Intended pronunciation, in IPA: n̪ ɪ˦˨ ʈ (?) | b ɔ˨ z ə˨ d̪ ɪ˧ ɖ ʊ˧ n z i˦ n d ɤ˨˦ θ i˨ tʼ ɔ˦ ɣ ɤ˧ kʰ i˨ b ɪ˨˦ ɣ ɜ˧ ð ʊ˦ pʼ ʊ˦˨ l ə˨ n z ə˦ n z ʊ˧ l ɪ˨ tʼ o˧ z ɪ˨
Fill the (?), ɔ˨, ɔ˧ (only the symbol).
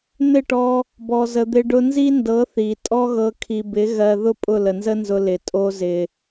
ɔ˧